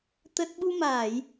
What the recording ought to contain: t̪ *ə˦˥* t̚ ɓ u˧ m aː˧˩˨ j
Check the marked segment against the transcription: correct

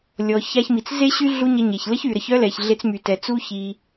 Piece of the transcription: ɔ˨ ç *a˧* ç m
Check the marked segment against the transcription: correct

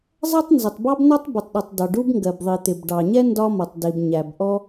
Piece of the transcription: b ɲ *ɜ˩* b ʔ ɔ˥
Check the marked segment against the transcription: incorrect: æ˩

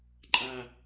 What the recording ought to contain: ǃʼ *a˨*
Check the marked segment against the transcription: correct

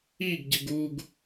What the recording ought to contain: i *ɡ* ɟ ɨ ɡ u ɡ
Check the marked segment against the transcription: correct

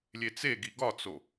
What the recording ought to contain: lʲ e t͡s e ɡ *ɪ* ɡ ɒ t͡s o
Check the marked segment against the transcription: incorrect: i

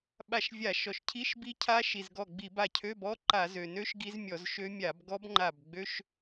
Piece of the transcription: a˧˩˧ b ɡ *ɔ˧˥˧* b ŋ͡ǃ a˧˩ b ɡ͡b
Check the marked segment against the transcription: incorrect: ɔ˦˥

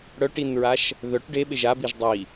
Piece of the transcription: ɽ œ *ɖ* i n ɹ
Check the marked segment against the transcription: incorrect: ʈ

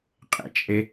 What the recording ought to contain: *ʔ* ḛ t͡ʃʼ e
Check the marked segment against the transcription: incorrect: qʼ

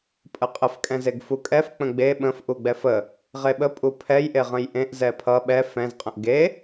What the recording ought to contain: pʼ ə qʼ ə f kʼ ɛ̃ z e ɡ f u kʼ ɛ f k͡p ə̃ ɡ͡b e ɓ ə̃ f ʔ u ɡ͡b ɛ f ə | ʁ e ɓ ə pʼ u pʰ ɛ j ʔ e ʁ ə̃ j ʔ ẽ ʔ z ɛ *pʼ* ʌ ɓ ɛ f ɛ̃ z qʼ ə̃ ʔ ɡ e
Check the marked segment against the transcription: incorrect: pʰ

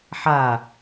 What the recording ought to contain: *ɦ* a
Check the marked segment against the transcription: incorrect: ħ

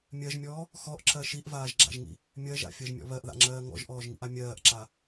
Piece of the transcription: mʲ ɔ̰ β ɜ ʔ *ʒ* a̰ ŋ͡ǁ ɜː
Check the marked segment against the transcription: incorrect: ð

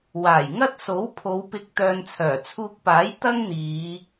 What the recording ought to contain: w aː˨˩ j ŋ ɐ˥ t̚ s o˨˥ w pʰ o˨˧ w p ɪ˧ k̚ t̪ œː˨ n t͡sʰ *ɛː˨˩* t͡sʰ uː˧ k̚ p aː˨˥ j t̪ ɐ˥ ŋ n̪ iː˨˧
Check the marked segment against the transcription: incorrect: œː˨˩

